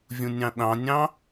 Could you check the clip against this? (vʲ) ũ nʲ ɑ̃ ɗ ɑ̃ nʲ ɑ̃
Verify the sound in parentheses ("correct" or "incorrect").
correct